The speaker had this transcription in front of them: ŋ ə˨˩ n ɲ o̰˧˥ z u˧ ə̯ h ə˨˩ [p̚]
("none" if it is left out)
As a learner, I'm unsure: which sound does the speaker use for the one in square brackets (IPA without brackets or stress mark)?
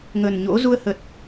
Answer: t̚